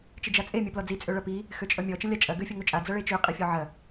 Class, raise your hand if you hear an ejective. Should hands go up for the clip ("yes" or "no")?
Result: yes